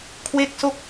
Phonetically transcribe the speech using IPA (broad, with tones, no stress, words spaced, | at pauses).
kʰwe˥˩k̚so˥˩k̚